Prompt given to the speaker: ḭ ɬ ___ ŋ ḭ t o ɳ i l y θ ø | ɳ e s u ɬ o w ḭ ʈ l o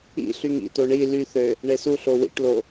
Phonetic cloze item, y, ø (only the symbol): y